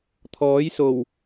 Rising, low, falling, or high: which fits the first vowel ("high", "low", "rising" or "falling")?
rising